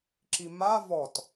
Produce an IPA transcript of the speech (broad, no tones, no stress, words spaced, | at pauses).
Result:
ǁima vɔt